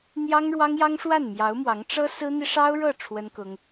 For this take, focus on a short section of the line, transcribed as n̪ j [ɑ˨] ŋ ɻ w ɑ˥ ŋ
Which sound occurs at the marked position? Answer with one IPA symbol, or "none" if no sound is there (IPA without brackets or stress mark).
ɑ˥